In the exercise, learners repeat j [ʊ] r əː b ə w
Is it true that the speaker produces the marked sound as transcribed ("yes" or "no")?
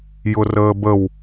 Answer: yes